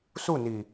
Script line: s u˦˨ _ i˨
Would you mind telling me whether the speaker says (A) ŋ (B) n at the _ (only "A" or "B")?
B